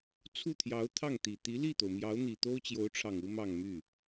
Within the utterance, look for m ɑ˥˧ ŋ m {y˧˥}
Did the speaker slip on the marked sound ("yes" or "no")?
yes